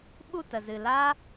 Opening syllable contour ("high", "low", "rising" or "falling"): falling